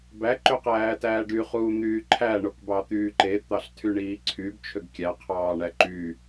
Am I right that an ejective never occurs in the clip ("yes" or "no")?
yes